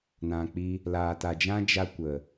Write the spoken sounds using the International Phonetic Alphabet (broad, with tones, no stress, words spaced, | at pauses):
nã˨k͡pi˧ | laː˨ta˨d͡ʒã˦ d͡ʒa˦kʷə˨